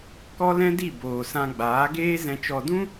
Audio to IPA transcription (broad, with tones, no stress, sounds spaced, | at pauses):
k ɔ˦ l ɛ̃˦ d i˦˨ b oː˨ s ã˧ ɡ͡b aː˨˦ ɡ eː˦ z ɛ̃˧ t͡ʃ ɔ˧ d ũ˦